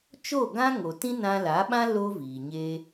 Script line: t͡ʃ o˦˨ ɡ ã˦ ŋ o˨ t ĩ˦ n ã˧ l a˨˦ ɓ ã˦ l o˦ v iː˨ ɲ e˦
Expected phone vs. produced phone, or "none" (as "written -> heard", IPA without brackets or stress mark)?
none